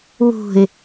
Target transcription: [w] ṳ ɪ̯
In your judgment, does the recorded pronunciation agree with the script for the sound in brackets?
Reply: yes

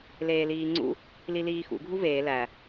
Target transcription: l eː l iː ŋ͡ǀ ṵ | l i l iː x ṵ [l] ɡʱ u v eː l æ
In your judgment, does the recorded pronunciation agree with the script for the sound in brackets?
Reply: no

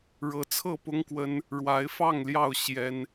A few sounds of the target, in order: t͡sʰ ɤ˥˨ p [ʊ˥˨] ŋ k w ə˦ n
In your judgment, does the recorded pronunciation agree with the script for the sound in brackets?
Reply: no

